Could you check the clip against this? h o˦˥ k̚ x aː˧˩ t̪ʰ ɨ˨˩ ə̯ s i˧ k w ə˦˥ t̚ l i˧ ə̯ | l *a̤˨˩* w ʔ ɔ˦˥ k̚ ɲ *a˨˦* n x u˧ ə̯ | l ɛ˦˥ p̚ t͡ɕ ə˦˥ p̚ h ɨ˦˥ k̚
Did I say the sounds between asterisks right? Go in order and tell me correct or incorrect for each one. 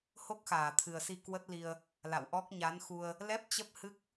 incorrect: a̰˧˨, correct

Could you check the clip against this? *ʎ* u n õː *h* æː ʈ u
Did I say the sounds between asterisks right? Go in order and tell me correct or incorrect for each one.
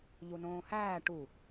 correct, correct

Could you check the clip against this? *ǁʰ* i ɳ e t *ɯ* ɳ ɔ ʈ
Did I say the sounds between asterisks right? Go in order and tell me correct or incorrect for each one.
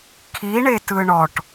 incorrect: kʰ, correct

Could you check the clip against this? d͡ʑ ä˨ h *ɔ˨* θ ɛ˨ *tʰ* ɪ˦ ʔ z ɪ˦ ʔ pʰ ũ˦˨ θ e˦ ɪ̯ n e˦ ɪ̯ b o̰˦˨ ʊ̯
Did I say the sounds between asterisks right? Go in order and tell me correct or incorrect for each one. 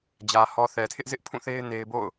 correct, correct

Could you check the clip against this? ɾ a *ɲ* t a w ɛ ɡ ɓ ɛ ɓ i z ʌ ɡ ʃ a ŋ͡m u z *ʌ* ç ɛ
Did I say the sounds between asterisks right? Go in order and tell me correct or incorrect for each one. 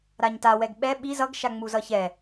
correct, correct

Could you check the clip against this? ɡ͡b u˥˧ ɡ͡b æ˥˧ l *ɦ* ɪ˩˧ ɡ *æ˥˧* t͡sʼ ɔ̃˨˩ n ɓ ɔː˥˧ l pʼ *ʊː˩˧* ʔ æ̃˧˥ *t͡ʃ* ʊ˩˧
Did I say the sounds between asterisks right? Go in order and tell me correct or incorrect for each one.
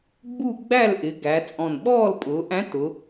incorrect: ʔ, incorrect: æ˩˧, correct, incorrect: t

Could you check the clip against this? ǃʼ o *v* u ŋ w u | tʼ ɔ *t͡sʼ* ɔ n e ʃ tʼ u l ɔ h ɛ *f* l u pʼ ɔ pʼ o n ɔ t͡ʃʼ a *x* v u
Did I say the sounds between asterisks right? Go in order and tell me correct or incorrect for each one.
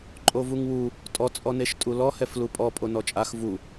correct, correct, correct, correct

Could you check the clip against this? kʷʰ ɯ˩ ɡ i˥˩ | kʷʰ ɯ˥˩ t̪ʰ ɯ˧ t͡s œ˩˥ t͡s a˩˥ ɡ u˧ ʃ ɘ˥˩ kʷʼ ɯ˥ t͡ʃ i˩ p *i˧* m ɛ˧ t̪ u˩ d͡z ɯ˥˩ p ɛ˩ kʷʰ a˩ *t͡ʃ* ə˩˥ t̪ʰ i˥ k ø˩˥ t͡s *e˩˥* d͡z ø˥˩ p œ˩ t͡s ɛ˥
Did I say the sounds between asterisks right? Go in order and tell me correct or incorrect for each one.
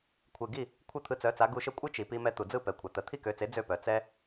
correct, incorrect: t̪, correct

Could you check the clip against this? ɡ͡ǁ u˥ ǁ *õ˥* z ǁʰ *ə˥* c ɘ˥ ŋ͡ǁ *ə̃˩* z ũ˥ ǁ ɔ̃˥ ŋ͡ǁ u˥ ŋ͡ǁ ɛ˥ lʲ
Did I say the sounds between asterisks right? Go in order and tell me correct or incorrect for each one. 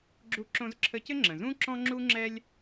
correct, correct, correct

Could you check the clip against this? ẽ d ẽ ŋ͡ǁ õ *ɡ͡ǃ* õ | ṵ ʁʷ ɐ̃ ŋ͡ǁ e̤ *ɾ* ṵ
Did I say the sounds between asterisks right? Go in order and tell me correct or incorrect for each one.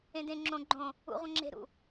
correct, correct

